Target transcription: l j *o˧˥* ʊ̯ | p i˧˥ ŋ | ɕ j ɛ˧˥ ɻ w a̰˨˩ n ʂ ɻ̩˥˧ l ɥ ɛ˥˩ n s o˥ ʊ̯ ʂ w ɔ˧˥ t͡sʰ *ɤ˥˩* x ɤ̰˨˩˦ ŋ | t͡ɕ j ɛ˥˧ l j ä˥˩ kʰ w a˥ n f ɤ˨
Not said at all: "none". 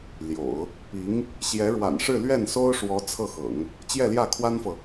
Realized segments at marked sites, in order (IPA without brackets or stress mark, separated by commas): o̰˨˩˦, ɤ˥˩